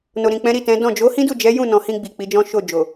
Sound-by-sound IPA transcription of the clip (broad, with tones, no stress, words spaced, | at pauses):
no˨ɾĩ˨k͡pɛ̃˨˦ ɾi˦˨tɛ̃˨˦ dɔ̃˦˨ d͡ʒo˨˦hĩ˦du˦˨d͡ʒɛ˨˦ jũ˦˨nɔ̃˨hĩ˧ɡ͡bi˨ k͡pi˨˦d͡ʒɔ̃˦ʃo˦˨ d͡ʒo˨